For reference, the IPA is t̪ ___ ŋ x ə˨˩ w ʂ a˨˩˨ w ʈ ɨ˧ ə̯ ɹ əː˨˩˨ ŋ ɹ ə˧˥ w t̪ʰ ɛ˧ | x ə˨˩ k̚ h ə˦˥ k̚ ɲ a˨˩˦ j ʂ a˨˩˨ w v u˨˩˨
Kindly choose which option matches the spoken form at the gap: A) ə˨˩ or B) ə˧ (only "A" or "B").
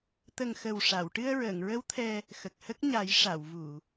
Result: A